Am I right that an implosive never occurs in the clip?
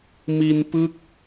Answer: yes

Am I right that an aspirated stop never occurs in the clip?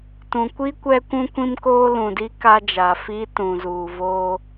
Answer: yes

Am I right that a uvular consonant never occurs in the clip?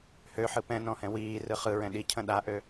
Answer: no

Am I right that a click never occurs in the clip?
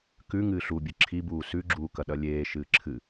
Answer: no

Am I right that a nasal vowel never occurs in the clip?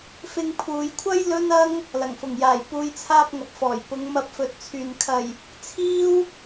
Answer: yes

